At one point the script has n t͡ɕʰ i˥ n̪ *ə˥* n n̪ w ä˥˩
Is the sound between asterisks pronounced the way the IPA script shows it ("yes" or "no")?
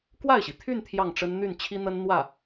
yes